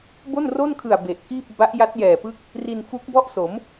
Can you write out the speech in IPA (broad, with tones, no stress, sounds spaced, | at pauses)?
b o˥˩ n r o˥˩ n kʰ ɯ˨˩ a̯ b e˨˩ ʔ k iː˥˩ p̚ b a˦˥ ʔ j a˦˥ t̚ j ɛː˨˩ p ɯ˦˥ k̚ | r i˧ n f u˦˥ k̚ b ɔ˥˩ ʔ s o˩˦ m